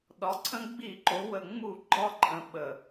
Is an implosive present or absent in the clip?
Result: present